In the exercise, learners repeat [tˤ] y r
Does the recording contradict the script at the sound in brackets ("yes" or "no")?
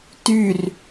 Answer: yes